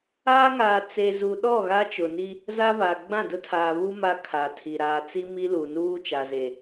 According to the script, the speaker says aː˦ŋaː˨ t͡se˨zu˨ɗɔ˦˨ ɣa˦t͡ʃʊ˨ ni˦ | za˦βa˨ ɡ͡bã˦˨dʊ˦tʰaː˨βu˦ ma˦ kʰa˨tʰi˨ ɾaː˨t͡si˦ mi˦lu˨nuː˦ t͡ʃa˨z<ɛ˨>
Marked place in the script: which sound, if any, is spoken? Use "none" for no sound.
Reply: e˨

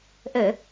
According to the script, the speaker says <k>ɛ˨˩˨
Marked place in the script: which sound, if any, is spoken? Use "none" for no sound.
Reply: ʔ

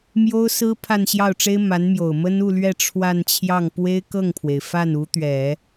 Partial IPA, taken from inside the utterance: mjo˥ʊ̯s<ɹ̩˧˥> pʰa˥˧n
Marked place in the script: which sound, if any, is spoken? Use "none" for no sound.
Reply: ɹ̩˥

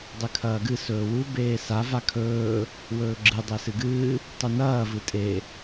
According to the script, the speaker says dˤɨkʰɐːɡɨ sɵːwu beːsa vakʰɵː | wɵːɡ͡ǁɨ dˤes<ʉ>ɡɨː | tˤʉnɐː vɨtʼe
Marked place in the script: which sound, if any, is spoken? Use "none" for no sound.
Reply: ɨ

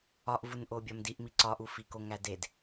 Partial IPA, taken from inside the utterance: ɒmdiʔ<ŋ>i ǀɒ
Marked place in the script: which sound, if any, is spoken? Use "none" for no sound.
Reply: m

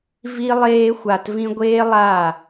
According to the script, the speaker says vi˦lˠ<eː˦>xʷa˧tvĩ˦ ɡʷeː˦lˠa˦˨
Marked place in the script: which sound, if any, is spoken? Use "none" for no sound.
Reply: eː˦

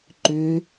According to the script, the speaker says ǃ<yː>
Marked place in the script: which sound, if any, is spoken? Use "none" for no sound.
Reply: ʏː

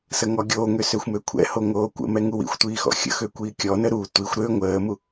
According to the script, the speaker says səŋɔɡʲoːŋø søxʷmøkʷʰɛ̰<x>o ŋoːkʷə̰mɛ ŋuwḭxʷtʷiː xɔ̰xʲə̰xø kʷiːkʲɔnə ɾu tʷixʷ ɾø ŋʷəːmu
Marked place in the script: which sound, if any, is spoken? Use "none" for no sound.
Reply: h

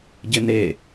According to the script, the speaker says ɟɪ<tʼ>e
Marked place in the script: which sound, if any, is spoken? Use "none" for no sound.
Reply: n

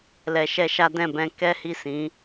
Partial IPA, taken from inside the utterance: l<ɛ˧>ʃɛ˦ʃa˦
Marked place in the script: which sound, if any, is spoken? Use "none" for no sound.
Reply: ɛ˧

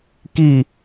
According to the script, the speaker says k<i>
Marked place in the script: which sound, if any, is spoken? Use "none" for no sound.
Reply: i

